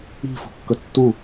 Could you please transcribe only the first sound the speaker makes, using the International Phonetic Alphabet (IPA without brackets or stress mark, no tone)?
i̤